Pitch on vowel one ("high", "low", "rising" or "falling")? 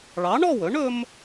rising